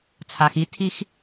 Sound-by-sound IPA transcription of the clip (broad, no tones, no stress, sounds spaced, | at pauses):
t͡sʰ a x i tʰ i x